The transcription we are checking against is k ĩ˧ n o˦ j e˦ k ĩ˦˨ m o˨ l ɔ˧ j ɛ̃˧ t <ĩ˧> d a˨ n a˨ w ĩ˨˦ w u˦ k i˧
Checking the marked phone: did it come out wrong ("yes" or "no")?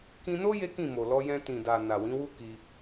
yes